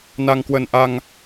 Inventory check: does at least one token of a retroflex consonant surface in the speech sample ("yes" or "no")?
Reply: no